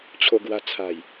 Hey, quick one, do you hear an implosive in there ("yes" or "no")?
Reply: no